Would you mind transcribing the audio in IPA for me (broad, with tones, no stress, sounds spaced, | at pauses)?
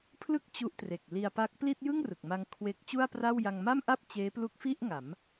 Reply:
pʰ l ɯ˥˩ k̚ t͡ɕ u˦˥ ʔ t r e˨˩ k̚ l i˧ a̯ p a˦˥ k̚ p l i˥˩ t̚ j ɯ˥˩ ŋ r ɯ˨˩ k̚ m a˧ ŋ kʰ w e˦˥ k̚ t͡ɕ u˥˩ a̯ p r a˥˩ w j a˧ ŋ m a˥˩ m ʔ a˥˩ p̚ t͡ɕ eː˦˥ p l u˦˥ k̚ f i˥˩ ʔ ŋ a˩˦ m